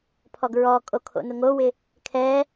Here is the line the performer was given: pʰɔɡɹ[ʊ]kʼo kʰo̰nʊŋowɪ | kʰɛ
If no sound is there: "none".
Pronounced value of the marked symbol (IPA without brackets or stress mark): ɔ